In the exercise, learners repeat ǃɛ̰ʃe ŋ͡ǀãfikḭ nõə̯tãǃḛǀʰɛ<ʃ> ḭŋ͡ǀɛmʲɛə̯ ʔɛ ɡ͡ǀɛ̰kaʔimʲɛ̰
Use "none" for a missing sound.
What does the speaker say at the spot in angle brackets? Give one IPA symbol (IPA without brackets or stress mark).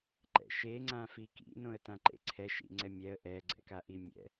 ʃ